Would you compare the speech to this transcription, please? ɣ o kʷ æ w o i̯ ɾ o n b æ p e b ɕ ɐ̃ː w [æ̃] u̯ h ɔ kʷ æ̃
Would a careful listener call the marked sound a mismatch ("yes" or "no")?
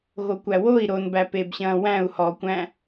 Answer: no